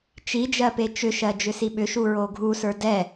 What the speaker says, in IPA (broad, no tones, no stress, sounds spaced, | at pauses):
t͡ʃ i d͡ʒ ɜ p e t͡ʃ ʏ ʃ ɜ d͡ʒ ʏ s i ɓ ʏ ʃ u ɹ o ɡʱ u s ə˞ d ɛ